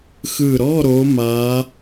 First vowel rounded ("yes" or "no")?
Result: no